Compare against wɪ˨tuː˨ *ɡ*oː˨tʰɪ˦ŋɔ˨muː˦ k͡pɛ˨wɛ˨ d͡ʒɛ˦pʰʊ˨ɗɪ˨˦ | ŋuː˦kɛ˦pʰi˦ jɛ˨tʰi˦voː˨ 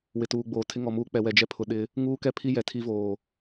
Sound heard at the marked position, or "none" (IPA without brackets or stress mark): ɡ͡b